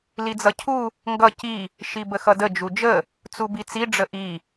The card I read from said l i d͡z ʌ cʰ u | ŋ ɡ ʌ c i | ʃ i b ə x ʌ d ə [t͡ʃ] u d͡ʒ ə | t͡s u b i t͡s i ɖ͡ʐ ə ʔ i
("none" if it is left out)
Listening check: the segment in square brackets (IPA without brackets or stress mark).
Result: d͡ʒ